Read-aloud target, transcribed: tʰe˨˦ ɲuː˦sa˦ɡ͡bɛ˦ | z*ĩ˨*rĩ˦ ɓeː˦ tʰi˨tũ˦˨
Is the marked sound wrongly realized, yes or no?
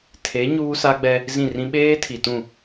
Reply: yes